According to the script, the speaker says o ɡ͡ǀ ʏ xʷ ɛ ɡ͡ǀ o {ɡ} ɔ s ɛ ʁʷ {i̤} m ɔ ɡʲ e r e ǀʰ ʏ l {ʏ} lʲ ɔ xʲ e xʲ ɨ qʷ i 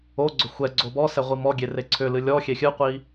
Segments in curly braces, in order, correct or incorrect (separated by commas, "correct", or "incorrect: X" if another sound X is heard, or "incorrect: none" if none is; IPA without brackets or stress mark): incorrect: b, incorrect: i, incorrect: ɨ